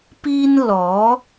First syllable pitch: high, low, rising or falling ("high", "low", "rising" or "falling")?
high